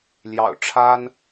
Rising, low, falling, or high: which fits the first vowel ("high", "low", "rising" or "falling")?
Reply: low